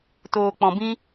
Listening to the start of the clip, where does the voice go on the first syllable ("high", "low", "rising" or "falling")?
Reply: low